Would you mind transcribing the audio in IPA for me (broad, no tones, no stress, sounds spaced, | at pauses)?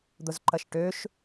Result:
d̪ ʊ z ǃ ɐ ʃ ʈ ø ʃ